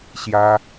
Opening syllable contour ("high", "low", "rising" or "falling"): high